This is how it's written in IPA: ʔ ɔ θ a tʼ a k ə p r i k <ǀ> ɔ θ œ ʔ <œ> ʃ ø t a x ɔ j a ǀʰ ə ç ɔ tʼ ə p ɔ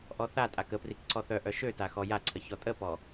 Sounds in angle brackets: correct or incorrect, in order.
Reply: correct, correct

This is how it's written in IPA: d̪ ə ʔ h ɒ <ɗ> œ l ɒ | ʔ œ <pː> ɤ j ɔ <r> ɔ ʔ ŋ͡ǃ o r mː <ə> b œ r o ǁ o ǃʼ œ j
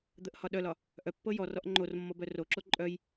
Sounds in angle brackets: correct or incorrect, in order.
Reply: correct, correct, correct, incorrect

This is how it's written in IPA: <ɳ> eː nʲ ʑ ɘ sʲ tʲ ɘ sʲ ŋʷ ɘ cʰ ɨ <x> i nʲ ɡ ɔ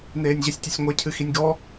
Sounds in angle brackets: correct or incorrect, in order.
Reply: incorrect, correct

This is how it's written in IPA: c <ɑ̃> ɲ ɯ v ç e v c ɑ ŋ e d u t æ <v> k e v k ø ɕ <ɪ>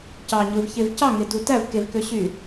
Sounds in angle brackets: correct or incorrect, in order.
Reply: incorrect, correct, incorrect

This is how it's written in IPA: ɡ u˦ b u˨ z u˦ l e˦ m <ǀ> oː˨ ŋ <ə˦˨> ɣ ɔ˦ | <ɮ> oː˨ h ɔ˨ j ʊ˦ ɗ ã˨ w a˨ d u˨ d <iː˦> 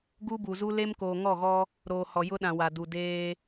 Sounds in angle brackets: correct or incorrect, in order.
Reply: incorrect, incorrect, incorrect, incorrect

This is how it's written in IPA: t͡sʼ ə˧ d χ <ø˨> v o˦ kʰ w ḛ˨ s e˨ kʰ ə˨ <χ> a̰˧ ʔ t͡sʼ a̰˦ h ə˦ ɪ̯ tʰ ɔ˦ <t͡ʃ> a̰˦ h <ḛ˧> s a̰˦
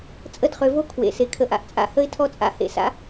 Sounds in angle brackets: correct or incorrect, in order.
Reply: correct, incorrect, incorrect, correct

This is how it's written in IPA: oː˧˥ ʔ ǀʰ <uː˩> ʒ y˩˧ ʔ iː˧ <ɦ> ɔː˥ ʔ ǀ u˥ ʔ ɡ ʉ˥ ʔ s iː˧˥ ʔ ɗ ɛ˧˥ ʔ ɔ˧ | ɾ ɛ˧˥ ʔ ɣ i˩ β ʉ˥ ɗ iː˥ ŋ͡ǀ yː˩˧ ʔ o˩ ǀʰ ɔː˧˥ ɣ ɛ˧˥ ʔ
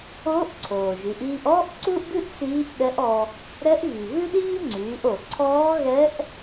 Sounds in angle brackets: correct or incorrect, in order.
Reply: incorrect, incorrect

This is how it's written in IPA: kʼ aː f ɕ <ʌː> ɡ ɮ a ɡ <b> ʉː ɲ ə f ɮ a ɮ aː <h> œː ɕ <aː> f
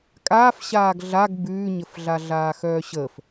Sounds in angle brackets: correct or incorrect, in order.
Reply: incorrect, correct, incorrect, incorrect

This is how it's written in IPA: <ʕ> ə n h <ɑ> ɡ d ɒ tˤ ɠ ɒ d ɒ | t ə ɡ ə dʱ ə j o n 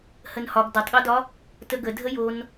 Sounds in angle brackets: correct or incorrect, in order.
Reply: incorrect, incorrect

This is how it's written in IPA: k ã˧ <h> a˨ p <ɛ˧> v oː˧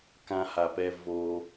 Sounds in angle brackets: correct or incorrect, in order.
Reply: correct, correct

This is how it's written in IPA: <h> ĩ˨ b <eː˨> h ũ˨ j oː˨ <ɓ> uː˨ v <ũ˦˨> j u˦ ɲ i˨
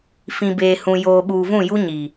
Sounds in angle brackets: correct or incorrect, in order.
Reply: incorrect, correct, correct, correct

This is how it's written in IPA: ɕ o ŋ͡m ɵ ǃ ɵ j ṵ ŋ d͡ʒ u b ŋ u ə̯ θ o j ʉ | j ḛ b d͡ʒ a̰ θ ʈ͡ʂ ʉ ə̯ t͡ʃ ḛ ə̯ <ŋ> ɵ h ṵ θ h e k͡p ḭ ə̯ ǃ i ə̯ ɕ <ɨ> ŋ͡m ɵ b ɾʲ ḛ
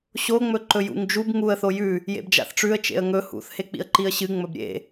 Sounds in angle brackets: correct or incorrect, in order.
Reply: correct, correct

